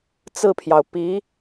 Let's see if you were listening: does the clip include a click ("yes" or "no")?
no